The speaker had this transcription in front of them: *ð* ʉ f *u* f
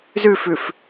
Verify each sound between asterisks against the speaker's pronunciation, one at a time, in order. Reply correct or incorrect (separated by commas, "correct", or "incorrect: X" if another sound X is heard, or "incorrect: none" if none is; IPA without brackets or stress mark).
incorrect: z, incorrect: ʉ